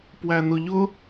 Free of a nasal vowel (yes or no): yes